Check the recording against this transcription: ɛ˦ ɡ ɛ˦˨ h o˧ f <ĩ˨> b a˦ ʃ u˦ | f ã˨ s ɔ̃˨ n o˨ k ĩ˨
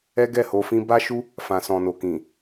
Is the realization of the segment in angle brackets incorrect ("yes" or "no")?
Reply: yes